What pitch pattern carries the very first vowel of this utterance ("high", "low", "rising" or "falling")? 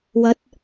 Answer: rising